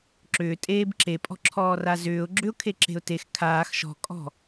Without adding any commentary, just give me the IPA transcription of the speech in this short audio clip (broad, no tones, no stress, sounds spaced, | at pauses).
ǁ ʏː tʼ eː b ǁ e pʼ ɔ̤ ǁʰ ɔː r a z ʏː ʊ̯ ɡ͡ǁ ʏ ʊ̯ kʰ e ǁ e̤ ʊ̯ t e x kʰ aː x ʃ ɔ̤ kʼ ɔ̤